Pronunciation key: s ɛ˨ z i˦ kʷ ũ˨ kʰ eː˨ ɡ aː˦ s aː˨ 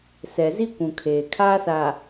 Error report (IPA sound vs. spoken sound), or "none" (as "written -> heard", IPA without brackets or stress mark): ɡ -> kʰ